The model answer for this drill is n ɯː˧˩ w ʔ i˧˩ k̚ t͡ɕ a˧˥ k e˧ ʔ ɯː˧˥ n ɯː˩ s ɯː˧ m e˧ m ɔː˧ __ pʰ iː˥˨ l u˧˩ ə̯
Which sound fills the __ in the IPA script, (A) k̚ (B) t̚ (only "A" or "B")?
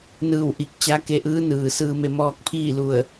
A